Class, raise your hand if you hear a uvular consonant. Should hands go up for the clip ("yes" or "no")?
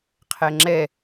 yes